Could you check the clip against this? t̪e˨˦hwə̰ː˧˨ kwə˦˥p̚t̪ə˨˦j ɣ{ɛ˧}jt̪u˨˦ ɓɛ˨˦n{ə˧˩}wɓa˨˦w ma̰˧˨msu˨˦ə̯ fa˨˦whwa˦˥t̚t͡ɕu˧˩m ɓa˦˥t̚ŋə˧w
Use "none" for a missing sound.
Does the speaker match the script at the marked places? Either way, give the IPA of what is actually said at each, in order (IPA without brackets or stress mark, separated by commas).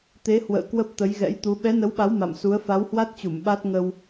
ɛ̰˧˥, ə˨˦